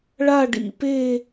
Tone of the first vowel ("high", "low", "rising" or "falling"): falling